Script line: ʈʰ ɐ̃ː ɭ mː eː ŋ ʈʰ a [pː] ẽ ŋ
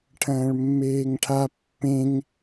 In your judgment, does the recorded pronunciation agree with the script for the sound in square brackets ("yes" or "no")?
yes